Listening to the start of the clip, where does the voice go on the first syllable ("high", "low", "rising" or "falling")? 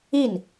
falling